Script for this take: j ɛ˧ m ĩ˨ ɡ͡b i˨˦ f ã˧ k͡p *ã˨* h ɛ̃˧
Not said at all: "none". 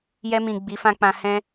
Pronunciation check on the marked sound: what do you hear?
ã˧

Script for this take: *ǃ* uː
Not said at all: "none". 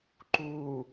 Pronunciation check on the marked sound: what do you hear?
ǃ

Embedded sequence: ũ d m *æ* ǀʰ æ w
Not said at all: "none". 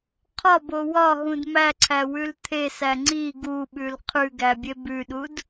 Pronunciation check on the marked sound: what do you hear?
æ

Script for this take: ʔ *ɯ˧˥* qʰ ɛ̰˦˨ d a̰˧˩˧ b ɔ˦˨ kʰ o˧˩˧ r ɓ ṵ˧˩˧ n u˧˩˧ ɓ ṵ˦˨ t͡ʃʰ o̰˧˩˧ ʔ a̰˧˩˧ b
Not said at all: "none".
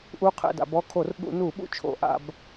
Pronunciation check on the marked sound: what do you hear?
u˧˥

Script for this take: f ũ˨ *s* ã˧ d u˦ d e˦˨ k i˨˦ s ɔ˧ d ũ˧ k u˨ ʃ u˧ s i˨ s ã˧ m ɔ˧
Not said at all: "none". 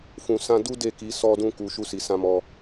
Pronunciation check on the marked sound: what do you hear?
s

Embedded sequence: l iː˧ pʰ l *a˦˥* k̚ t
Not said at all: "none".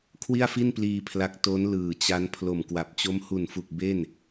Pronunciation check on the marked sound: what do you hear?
a˦˥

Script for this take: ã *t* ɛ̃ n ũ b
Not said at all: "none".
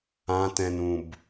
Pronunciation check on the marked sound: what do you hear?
t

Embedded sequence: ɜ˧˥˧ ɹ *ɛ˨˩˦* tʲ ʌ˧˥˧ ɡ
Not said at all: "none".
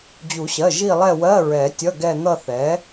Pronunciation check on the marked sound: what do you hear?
ɛ˨˩˦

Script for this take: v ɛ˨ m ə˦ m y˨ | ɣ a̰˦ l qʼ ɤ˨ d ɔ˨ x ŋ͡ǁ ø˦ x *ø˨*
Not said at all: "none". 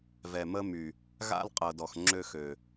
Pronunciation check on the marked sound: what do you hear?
ø˨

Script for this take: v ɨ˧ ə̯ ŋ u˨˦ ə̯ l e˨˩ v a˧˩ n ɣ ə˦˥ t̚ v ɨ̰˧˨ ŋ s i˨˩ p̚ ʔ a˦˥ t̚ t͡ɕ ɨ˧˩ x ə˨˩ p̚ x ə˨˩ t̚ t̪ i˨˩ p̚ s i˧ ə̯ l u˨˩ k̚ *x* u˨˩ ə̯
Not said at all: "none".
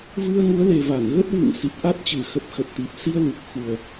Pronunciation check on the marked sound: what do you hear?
x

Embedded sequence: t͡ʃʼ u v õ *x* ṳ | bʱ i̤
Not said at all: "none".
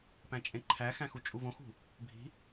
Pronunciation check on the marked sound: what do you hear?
x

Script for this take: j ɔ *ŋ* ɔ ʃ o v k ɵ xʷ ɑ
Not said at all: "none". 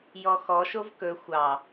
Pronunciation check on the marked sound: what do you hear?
x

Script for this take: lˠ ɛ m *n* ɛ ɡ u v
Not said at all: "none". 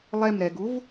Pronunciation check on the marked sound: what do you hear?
ɾ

